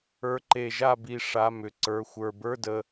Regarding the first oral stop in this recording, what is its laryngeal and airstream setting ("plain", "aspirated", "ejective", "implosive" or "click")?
click